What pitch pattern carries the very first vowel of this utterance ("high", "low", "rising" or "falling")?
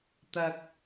low